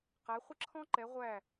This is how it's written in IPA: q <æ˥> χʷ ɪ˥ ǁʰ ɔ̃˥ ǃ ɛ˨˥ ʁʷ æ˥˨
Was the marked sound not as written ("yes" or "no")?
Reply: yes